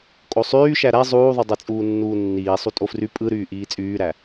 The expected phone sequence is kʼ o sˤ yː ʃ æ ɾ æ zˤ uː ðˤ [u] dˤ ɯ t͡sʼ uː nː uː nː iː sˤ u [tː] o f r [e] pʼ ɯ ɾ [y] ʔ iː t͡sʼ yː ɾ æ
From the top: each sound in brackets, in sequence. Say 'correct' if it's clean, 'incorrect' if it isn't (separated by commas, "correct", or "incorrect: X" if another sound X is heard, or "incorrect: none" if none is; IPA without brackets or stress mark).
correct, incorrect: tʼ, incorrect: y, incorrect: yː